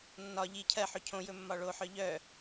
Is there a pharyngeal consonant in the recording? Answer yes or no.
yes